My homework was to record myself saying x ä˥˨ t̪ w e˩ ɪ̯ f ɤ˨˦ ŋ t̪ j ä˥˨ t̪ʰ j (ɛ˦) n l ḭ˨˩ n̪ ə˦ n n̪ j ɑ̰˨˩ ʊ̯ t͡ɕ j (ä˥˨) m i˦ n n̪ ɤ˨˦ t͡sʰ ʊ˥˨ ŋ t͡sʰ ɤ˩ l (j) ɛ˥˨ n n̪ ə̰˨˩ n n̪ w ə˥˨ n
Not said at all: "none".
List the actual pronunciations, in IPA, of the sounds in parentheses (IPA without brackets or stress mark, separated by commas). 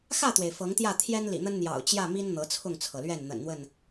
ɛ˦, ä˥˨, ɥ